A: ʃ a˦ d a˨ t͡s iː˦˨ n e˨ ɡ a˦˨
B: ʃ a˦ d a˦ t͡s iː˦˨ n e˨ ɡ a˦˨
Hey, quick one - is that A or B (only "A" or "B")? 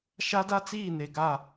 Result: B